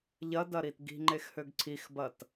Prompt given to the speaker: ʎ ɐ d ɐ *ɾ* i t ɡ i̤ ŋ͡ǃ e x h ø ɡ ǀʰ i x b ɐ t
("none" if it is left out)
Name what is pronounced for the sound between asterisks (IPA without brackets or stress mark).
ɾ